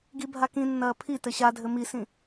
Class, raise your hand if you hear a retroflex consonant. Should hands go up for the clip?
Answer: no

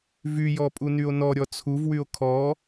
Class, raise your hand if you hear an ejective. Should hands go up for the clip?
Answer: yes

